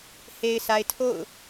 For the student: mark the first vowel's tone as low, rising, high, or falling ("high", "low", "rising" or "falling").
low